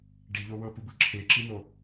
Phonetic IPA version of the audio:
ɖ i ʎ o w ɤ p u b ɯ ǁʰ e ǁ i n̪ o

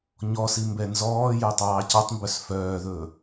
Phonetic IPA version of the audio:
ɲ ɔ s i m b ɛ n z ɔː j œ tˤ ɑː c ɑ tˤ m b œ s f œː ð ɵː

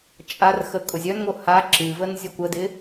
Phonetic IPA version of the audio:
t͡ʃʼ a r x ə kʼ ʊ zʲ œ n ŋ o h a ǁ ɨ v ə n zʲ ʊ kʷ ə d ɪ

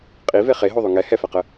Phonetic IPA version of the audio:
qʼ i v e χ e ɦ o ðˤ ʉ ŋ ɛ h ɛ f ɛ q ə

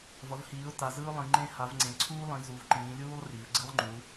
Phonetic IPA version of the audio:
v ʌ˩˧ v h iː˩˧ ʊ̯ t a˩˧ z ɯ˦ ʊ̯ lˠ ĩ˩˧ ŋ͡ǃ ẽ˦ h a˩˧ v ŋ͡ǀ ẽ˩˧ ǀʰ uː˦ lˠ ĩ˩˧ z u˩˧ v ǃ ĩː˩˧ lʲ uː˦ lˠ r i˩˧ v ɡ͡ǀ ɯ˦ lˠ ŋ͡ǃ u˩˧

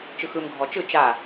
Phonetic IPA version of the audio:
t͡ʃ ɯ x ɯ m ɡʱ ɔ t͡ʃ ɯ t͡ʃ a

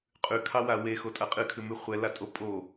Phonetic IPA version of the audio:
qʼ ʉ kʰ ɑ w a w e x o tʼ a qʼ ɨ kʰ ʉ m ʉ χʷ ɛ l a tʼ o pʼ o

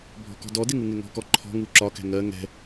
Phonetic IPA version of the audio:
bʱ ɔ̤ k ɔ̤ d ɔ d ɪ ŋ u ŋ ɪ ŋ ɔ̤ k ɔ ǃʰ ɔ̤ ŋ u ǁ ɒ k ɛ̤ ŋ ɜ ŋ ɛ̤

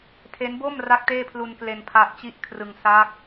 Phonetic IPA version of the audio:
tʰ e˦˥ n b o˥˩ m r a˥˩ k̚ t eː˥˩ pʰ l u˧ n k l e˧ n pʰ a˦˥ ʔ t͡ɕ i˥˩ ʔ kʰ r ɯ˧ ŋ s a˦˥ k̚

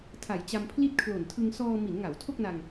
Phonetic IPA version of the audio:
tʰ a˨˩ j t͡ɕ a˧ m pʰ l i˥˩ t̚ kʰ l o˨˩ n tʰ ɯ˧ ŋ s ɔː˧ m i˩˦ n ŋ a˩˦ w tʰ o˥˩ k̚ n a˧ ŋ

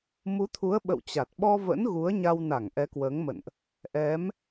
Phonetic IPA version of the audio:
m u˨˦ t̪ʰ u˨˦ ə̯ ɓ ə̰˧˨ w t͡ɕ a˨˩ t̚ ɓ ɔ˧ v ə̰˧˥ n ɣ u˨˦ ə̯ ɲ a˧ w n a˧˩ ŋ ʔ ɛ˨˦ k w əː˨˦ ŋ m ə̰˧˨ n ʔ | ʔ ɛ˨˦ m

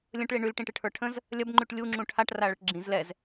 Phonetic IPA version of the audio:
lʲ ə̃ ʈ ɭ i ɳ y l ʈ ĩ ʈ ɨ ʈʰ ə˞ ʈʰ ə̃ z | lʲ ɐ b ŋ͡ǃ y ʈ lʲ u ŋ͡ǁ ũ ʈʰ a ʈ r a ɭ ə ʈ ɡ͡ǁ ĩ z l ɛ z

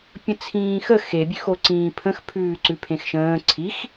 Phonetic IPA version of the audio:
pʲ ə̃ t͡sʰ ĩː x ə x e bʲ ʉ x o ǀ ĩː pʰ ə̃ x pʰ ʉː ǀ ʉ pʰ ẽ x ʃ ə̃ː ǀʰ i x

